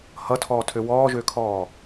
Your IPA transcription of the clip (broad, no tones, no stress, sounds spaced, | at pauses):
h ʌ tʰ ɔː tʰ ø w ɔː ʒ øː kʰ ɔː